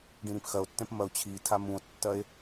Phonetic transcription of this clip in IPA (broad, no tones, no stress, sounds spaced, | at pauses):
ɖ ĩ ɾ ĩ p x ɐ o̯ tː ɛ̃ p m ɐ o̯ t͡ɕʰ i tʰ a m ũ o̯ tː ɐ e̯